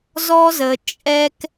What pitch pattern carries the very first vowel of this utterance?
high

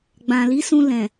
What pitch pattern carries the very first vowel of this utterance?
low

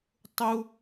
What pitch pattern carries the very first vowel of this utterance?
high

